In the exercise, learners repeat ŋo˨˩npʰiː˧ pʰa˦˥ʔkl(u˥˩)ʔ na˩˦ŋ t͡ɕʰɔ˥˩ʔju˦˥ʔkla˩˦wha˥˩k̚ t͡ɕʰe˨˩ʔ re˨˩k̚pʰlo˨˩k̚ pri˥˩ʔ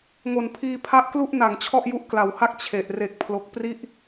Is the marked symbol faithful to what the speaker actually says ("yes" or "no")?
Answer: yes